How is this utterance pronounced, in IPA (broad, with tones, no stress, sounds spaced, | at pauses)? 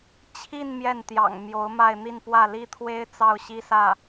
t͡ɕʰ i˥˧ n m j ɛ˥˩ n t̪ j ɑ̰˨˩ ŋ m j o˧˥ ʊ̯ m a˥˧ ɪ̯ n̪ i˥˧ n p w ä˥˩ l i˥ t̪ʰ w e˥ ɪ̯ t͡s ɑ˥˩ ʊ̯ ɕ i˥ s ä˥˩